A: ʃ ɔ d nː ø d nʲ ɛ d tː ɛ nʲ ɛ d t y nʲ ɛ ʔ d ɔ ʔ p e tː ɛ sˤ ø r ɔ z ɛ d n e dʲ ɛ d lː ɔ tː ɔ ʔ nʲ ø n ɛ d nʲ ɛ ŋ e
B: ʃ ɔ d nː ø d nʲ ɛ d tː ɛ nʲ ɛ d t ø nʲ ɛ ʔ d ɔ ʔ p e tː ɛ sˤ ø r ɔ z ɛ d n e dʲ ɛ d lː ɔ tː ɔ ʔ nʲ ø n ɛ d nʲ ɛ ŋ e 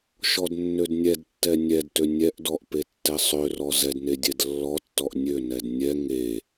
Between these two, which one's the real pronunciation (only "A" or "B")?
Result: B